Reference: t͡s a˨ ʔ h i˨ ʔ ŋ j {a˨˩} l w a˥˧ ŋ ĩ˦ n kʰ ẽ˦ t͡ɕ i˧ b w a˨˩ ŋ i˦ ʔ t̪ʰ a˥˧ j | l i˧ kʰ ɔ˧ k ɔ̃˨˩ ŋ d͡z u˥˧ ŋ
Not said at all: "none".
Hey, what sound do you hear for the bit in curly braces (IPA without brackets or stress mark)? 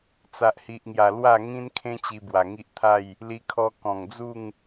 a˨˩